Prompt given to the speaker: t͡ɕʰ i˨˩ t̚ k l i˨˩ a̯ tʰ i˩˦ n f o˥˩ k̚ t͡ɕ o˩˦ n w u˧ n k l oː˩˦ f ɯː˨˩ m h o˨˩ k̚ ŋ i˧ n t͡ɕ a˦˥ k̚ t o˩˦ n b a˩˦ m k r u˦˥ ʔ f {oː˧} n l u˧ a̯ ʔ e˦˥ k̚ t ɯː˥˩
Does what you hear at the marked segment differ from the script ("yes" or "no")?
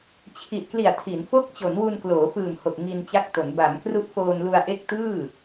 no